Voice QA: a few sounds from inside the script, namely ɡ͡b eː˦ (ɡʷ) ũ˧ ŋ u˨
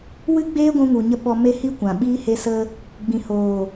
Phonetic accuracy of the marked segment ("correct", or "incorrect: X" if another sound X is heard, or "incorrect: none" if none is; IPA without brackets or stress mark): correct